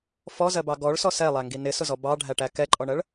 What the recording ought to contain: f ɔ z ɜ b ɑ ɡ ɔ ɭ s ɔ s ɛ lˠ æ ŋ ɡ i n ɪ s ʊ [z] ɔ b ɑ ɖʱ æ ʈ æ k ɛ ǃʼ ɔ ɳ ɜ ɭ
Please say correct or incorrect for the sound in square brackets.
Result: correct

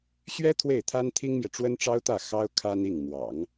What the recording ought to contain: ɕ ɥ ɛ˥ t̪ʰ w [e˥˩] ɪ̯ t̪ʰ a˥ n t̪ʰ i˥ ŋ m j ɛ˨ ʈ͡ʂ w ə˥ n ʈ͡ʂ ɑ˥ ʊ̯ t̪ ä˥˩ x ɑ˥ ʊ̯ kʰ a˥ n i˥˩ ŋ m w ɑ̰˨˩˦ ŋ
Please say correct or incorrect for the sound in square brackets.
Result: correct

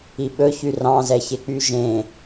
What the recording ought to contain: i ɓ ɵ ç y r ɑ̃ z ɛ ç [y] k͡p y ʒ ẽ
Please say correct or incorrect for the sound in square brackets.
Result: incorrect: e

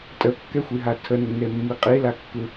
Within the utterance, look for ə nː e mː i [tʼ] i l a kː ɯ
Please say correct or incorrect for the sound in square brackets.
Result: incorrect: qʼ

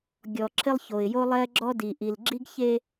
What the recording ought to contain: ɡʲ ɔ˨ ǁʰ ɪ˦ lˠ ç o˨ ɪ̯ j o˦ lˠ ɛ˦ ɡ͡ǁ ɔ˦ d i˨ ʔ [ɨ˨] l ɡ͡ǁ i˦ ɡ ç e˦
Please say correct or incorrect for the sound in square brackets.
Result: incorrect: i˨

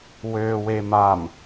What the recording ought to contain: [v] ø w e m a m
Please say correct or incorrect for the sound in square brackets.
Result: incorrect: w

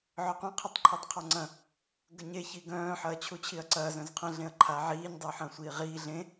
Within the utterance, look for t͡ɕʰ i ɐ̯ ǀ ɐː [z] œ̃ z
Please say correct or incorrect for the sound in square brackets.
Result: correct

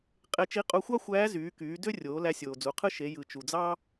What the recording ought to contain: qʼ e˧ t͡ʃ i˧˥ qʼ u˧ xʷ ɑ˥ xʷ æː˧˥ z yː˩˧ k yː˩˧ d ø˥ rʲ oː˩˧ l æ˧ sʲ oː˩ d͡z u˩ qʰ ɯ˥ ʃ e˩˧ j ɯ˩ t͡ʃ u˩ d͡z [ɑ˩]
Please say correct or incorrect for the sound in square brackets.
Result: incorrect: ɑ˥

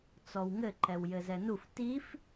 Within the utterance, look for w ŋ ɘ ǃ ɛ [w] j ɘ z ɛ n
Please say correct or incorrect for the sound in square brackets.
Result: correct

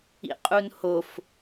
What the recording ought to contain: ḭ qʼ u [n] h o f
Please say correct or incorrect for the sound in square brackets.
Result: correct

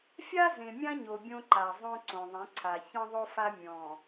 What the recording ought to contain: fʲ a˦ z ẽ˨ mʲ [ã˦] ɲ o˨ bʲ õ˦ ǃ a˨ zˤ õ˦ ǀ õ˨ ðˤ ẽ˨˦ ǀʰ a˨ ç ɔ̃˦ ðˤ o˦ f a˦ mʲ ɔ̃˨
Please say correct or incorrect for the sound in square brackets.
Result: correct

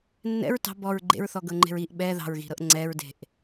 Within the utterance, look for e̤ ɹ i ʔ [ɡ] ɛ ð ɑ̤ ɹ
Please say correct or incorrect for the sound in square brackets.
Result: incorrect: ɓ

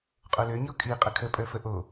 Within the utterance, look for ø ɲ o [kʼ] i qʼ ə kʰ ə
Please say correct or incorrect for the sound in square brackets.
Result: correct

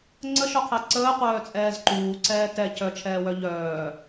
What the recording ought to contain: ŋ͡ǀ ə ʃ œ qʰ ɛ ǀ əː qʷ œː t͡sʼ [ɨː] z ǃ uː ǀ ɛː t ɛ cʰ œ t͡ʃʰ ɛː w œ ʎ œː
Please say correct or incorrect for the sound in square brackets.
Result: incorrect: ɛː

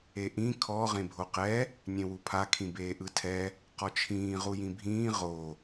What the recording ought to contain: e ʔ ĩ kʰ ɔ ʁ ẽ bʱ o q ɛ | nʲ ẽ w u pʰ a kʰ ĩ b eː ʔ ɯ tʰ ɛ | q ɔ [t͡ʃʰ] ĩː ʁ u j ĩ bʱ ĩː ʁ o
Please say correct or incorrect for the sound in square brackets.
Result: correct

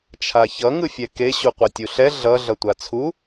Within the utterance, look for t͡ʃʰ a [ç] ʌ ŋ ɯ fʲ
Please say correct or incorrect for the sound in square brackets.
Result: correct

